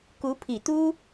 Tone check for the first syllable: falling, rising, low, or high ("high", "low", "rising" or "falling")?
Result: rising